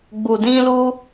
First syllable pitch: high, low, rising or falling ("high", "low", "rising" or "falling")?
low